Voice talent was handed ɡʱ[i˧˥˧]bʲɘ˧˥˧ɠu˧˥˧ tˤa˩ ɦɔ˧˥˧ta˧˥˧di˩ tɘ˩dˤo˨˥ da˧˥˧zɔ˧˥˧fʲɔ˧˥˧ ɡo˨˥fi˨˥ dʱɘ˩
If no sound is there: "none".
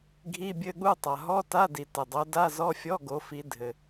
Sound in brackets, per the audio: i˧˥˧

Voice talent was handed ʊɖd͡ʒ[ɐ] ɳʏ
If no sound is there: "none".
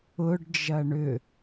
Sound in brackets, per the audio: ɐ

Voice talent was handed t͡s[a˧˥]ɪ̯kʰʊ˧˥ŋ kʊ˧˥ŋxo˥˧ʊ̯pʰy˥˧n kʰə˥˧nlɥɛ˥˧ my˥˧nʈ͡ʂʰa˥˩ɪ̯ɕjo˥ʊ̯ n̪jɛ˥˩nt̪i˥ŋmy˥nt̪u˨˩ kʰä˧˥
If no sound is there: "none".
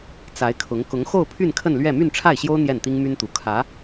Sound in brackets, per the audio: a˧˥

